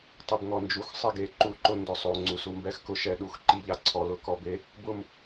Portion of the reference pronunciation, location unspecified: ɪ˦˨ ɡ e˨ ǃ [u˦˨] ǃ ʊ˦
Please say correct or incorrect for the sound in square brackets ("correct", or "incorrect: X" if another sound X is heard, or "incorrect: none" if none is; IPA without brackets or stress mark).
correct